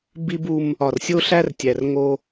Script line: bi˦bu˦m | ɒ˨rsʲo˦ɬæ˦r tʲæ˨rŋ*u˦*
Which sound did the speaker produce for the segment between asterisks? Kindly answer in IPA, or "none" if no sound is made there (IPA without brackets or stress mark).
o˦